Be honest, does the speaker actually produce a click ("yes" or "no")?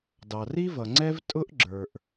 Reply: yes